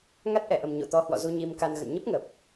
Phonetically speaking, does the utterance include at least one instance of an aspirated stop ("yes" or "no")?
no